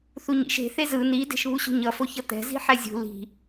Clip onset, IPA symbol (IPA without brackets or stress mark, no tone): θ